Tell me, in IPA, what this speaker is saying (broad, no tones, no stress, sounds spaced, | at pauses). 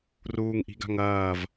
r uː ŋ ʔ i̤ ɡ a̤ ŋ ɐː v